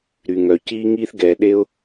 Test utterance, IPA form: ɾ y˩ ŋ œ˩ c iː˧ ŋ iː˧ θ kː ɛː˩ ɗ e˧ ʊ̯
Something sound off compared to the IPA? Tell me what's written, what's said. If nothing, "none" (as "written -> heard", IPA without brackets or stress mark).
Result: kː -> ɡ